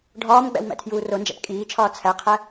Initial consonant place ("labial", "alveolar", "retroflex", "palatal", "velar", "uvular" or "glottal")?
retroflex